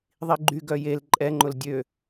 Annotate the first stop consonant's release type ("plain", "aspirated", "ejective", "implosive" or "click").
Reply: click